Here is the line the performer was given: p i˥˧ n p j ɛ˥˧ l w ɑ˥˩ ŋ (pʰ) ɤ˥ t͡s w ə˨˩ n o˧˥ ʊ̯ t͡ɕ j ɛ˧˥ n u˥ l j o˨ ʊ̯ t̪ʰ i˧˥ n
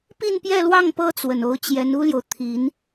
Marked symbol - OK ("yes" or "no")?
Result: no